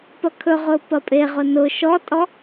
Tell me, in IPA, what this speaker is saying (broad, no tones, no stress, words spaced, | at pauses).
pɐkʰɵʁʊː pɐpʼeʁʊ nʊ ʃɔtʼɔ